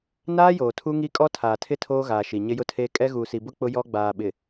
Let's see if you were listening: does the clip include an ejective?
yes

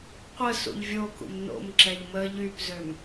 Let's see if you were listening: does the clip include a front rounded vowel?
yes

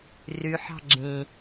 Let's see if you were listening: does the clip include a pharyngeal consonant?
yes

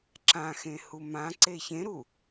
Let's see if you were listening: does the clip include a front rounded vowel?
no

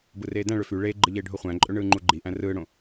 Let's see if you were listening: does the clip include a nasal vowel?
yes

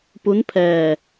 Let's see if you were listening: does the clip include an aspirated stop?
yes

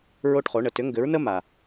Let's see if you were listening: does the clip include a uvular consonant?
yes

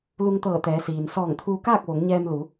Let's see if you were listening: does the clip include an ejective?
no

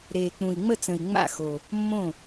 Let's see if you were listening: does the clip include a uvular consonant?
no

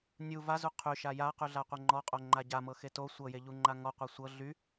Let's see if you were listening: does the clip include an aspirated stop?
yes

